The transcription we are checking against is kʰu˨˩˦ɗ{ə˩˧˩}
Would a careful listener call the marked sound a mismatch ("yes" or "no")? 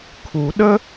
yes